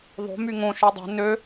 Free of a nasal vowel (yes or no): no